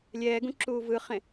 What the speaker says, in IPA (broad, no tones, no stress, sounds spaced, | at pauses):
lʲ ɛː ɡ ũ ǁ uː v ɯ χ ẽ